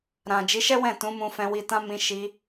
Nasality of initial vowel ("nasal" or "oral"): nasal